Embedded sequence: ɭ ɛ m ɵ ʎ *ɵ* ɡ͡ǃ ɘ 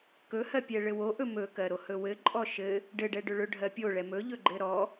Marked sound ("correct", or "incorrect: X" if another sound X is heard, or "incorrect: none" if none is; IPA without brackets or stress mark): correct